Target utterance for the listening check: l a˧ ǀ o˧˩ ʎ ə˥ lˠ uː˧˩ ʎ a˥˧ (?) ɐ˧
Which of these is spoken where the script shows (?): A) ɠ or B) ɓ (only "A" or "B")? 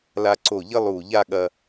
A